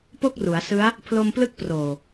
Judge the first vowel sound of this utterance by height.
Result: mid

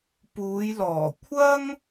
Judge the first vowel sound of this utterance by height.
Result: high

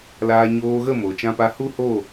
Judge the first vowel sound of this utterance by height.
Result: low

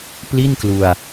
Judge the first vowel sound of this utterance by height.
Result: high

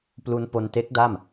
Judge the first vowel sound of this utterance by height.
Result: high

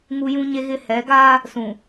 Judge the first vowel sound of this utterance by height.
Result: high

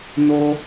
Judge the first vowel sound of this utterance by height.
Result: mid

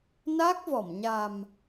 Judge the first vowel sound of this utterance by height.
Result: low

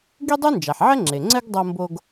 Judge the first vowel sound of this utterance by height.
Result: high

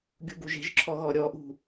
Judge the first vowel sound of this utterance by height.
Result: high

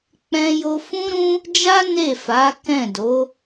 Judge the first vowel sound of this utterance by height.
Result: mid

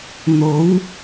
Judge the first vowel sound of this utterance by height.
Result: mid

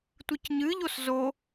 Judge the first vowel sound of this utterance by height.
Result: high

